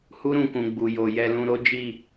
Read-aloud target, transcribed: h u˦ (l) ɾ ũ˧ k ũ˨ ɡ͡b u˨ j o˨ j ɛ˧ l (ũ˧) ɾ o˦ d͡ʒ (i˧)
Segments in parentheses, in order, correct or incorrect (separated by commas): incorrect, correct, incorrect